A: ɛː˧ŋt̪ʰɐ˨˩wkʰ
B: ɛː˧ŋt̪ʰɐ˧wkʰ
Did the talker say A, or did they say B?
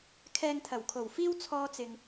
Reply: A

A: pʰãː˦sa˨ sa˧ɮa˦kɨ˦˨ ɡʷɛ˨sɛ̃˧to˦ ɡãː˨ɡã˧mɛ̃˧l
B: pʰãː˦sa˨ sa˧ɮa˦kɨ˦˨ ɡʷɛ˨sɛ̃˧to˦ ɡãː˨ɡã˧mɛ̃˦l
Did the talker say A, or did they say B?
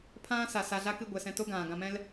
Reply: B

